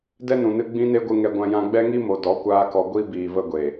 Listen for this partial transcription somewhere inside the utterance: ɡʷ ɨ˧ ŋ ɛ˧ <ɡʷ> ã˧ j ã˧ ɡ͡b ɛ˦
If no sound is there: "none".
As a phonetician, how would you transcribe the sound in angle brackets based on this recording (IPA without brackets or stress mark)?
ɡʷ